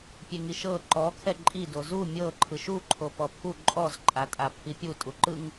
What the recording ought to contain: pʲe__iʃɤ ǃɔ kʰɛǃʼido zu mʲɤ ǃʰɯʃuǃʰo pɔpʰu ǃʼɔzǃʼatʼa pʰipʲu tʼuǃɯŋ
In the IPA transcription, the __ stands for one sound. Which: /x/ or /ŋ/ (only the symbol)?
ŋ